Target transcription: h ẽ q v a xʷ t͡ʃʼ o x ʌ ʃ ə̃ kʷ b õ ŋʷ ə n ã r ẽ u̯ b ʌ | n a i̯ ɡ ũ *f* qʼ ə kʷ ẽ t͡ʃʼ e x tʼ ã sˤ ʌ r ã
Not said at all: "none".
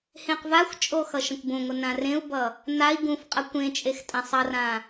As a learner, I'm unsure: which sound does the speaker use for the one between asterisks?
f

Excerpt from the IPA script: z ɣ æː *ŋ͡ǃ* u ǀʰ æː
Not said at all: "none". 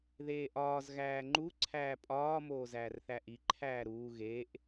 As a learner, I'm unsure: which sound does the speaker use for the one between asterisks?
ŋ͡ǃ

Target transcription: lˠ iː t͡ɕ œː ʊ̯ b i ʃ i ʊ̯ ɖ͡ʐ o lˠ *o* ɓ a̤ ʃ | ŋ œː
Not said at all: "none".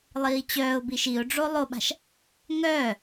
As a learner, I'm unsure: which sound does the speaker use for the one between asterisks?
o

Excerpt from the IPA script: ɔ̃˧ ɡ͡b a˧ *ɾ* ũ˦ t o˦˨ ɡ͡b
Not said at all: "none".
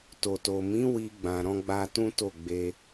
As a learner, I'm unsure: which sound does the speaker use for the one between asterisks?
t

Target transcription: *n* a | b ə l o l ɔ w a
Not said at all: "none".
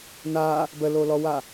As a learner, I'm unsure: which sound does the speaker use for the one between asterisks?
n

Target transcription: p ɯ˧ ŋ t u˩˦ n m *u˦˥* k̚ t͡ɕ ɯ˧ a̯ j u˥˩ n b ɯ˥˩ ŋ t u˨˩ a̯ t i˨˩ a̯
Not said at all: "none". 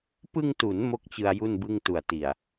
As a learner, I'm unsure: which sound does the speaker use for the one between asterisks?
o˦˥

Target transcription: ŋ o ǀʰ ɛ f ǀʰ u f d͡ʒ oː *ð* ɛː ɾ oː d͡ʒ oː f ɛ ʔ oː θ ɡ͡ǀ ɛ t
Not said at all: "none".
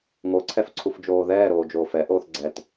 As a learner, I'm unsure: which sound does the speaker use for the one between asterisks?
ð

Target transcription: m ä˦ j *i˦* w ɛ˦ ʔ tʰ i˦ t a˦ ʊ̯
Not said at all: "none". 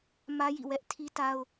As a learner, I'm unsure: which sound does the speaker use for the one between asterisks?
ḭ˦˨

